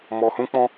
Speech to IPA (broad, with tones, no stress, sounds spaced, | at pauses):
m ɔ˧ h ũ˦ k͡p ɔ̃˦